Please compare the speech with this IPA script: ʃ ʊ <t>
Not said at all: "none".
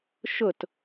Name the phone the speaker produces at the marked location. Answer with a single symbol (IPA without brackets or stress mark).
t